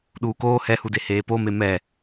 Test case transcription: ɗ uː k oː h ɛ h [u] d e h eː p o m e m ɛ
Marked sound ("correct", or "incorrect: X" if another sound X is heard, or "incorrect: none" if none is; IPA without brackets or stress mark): correct